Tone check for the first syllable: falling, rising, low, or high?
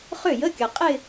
falling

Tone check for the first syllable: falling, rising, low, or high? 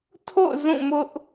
falling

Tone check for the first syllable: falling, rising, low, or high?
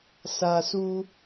low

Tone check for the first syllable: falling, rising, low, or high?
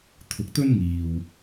rising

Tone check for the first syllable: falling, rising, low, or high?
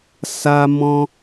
high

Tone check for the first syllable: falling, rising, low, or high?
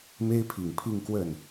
high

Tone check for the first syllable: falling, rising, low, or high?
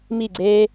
falling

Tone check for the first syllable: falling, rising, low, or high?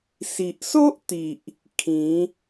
low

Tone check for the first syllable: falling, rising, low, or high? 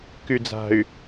low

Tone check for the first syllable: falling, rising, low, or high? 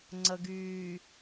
low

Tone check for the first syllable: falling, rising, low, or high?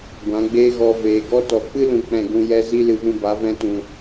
rising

